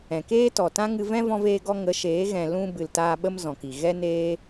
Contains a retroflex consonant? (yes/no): no